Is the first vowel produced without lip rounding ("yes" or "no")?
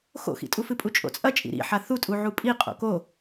no